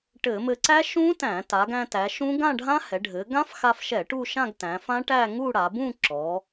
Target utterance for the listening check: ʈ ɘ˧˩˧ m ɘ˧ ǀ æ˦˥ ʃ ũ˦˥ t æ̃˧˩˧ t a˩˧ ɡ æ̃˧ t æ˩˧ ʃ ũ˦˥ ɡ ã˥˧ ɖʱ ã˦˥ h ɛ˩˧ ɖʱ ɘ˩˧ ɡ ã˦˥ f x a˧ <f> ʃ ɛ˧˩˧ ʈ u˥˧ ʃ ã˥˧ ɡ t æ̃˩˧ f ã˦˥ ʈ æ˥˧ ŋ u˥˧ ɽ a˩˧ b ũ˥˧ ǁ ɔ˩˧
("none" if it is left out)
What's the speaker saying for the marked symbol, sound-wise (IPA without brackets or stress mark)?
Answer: f